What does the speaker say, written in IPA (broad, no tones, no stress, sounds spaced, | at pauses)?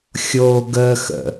xʲ o ɡ ə x ə̰